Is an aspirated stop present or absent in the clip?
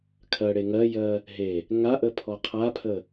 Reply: present